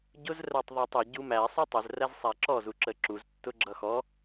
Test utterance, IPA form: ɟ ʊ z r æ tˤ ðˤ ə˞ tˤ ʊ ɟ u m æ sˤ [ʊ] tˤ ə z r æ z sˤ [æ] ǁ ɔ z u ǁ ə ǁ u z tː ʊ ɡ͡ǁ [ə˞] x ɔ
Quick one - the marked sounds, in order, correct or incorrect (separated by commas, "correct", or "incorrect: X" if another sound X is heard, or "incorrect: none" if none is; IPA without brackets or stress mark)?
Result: incorrect: u, correct, incorrect: ʌ